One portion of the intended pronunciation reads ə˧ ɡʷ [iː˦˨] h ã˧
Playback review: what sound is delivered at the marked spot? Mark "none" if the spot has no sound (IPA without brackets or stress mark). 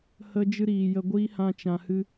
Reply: iː˦